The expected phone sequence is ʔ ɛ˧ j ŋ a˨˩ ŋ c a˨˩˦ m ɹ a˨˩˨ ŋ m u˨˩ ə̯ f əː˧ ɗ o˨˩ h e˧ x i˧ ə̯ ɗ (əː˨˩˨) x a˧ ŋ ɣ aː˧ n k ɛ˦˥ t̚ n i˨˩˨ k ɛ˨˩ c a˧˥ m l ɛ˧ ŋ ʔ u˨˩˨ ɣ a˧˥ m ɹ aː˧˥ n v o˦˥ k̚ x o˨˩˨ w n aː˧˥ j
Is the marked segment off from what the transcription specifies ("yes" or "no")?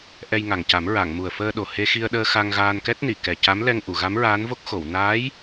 yes